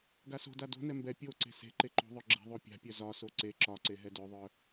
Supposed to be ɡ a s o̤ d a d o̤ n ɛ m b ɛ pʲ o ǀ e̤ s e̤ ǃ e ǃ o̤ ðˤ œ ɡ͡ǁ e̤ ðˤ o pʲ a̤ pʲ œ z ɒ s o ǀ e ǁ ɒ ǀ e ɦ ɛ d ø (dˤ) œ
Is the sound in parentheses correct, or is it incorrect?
incorrect